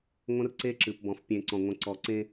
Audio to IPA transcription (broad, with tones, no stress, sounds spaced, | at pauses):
ŋʷ ə̃˦ r ǀ e˦ ǁ ɨ˨ p b ɔ̃˨ f pʲ ẽ˨ ǀ ɔ̃˨ ŋʷ ə̃˨ ǀ ɔ˨ ǀ ẽ˦